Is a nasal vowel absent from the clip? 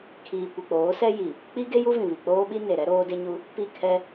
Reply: no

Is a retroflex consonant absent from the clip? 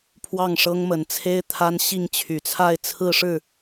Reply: no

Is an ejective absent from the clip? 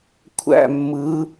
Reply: yes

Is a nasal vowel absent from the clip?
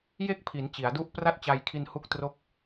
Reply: yes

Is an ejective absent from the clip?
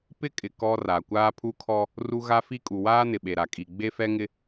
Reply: no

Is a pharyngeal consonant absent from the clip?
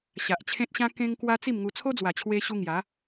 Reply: yes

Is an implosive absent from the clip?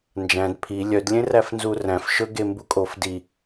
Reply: yes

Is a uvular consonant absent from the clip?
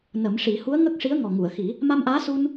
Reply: yes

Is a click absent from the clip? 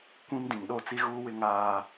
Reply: yes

